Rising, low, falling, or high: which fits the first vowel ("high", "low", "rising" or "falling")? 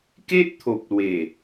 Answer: high